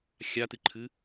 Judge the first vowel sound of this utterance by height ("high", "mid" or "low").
low